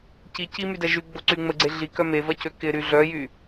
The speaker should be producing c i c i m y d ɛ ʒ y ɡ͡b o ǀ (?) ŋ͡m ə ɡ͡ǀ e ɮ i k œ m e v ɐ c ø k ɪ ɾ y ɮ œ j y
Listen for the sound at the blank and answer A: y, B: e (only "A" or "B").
A